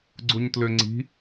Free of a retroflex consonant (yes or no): yes